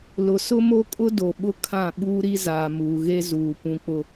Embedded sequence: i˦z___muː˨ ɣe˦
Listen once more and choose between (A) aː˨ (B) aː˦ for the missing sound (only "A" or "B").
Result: A